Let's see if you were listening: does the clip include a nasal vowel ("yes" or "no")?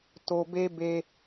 no